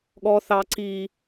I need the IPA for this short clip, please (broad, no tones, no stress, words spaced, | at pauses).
ɠɔ θɑ ǀi